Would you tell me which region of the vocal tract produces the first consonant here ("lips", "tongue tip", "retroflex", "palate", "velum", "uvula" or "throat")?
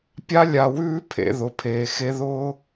lips